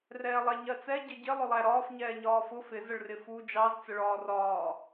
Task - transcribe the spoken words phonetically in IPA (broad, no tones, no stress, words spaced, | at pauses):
rɛːlˠɛɲɜt͡sɛ ɟəɟɪ lˠʊlˠæɾɒːf ɲɛːɲɒːfʊ fɪ zəɭrɪfu d͡ʒɑz t͡səɭɒːrɒː